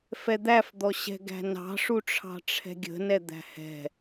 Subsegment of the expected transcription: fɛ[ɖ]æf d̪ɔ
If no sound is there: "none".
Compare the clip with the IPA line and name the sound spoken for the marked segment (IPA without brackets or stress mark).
d̪